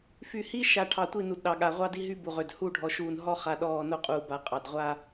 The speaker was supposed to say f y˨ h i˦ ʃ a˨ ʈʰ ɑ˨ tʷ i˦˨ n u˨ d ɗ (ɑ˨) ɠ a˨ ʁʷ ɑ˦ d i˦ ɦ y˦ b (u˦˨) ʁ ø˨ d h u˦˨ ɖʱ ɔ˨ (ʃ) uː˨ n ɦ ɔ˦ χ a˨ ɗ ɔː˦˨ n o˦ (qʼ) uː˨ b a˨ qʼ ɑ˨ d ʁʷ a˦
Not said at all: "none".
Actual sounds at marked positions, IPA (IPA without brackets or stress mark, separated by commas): ɑ˨, u˨, ʃ, qʼ